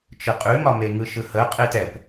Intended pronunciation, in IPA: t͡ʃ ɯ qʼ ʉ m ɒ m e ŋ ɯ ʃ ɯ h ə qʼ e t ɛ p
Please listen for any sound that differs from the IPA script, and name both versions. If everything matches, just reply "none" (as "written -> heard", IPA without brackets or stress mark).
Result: none